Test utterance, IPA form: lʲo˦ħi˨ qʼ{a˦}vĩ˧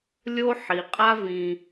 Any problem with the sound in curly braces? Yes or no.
no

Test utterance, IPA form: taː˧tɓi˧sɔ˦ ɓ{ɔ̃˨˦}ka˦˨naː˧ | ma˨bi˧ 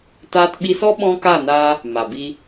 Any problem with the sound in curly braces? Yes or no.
yes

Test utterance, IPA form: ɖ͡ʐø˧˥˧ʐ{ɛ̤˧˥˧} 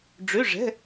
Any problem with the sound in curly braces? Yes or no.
no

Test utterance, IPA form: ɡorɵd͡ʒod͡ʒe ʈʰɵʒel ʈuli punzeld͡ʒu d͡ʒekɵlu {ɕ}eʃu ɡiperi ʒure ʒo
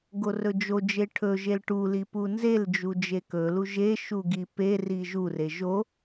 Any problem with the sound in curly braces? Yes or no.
yes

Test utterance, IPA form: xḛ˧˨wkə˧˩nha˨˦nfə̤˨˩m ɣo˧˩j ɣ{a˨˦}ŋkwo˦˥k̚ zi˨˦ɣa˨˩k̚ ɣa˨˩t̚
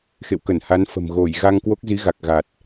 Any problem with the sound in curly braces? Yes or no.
yes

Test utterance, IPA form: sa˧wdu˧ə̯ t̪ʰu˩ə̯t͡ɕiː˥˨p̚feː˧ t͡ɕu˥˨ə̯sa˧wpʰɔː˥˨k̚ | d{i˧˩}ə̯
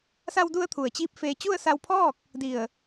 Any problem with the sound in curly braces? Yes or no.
no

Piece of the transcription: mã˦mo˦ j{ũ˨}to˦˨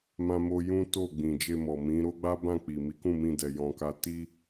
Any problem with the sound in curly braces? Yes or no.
yes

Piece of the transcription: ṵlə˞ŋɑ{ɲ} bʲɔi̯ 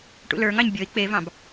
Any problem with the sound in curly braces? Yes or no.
no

